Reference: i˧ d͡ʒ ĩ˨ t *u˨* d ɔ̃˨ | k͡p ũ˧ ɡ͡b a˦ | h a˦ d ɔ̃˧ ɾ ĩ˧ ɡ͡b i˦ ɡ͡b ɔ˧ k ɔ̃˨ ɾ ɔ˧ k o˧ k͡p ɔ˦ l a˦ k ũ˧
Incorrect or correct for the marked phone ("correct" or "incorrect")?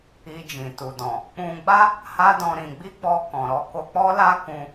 correct